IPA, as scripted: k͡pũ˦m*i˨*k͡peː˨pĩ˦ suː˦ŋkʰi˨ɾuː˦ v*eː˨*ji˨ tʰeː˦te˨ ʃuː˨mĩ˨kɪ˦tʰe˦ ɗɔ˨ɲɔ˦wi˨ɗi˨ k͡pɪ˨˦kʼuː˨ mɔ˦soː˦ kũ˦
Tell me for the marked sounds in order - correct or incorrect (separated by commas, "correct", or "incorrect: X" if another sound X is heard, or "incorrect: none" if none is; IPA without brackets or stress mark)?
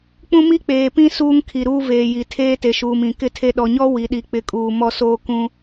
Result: incorrect: i˦, correct